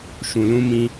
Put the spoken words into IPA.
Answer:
ʃ ũ˧ l ũ˦ m ĩ˦

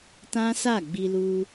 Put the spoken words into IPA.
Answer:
t ã˦ s a˦˨ ɡ͡b i˧ l u˧

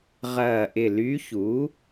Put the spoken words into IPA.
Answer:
ʁ ɐː˧˩ ʔ ɪ˧˩ l y˧˥ ç u˩˥

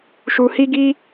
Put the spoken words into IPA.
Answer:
ʃ u˧ h i˦ ɡ i˦

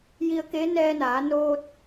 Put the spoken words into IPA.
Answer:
j i˧ ə̯ k e˧˥ n ɛː˧ n aː˩˧ n oː˧ t̚

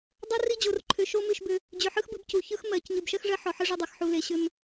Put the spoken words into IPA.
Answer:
dˤ o˦ r i˦ d͡ʑ o˨ r ǃʰ ʏ˨ ʃ o˦ m ɨ˦˨ ʃ b ʏ˦ | d͡ʑ ʏ˨ ħ ɯ˦ x b ɨ˨˦ b c u˨ ç ɯ˦ x m ɜ˨˦ c ɲ ɯ˨ b ʃ ɜ˦ x ʐ ɜ˦ ħ ɔ˨ ħ ɯ˦ ʐ ʏ˦ dˤ ɜ˨ x ħ u˨ l e˨ ɕ ʏ˦ m

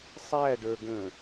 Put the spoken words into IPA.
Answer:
sˤ æ ɖ ə˞ ɡ ə̃ː

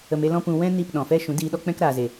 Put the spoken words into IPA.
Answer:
ə˧ m e˦ l ɔ̃˦ p ũ˧ w ɛ̃˦ n i˦˨ p ɗ ɔ̃˨ f ɛ˦ ʃ ũ˨˦ d iː˧ ɗ ɔ˦ k͡p ɛ̃˦ k ɾ a˨ z e˨

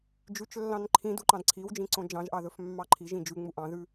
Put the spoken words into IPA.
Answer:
d͡ʒ ʉ t͡ʃ lː ɑ̃ n ǃʰ ĩ d u ǃ ɑ̃ d ǀʰ i w d͡ʒ ĩ ǀ õ d͡ʒ ɑ̃ ʒ ʔ ɑ ð ɵ f mː ɑ ǃʰ i ʒ ĩ d͡ʒ ʉ ŋ͡m u ʔ ɑ̃ ð ʉ

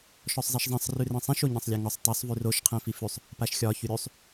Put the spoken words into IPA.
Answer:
ʃ ɔ sˤ zˤ i ʃ zˤ ɛ̃ sˤ r ʉ r ɛ̃ sˤ ĩ ʃ o ɲ ɛ̃ sˤ lʲ a ŋ ɔ sˤ tˤ ʉ sˤ v ʉ r o ʃ qʰ ɛ̃ f i f ʉ sˤ | p a ʃ xʲ ɒ ç ʉ ɾʲ ʉ sˤ

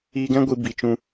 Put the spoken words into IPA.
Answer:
iː˧ ɡ ɛ̃˦ ɡʷ i˧ b i˨ t͡ʃ ũ˧

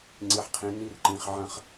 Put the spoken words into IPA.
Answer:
ŋ͡ǀ i˩ ħ qʰ ĩ˩ n i˨ r ǃ ĩ˩ χ ʕ ɐ̃˨ χ

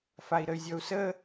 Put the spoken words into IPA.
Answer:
f a i̯ ɾ ə y̯ zʲ ɔ u̯ s ə

